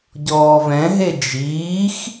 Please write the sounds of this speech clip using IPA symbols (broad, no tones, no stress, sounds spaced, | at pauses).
ɟ ɔː v ɛ̃ ɦ e d͡ʒ iː x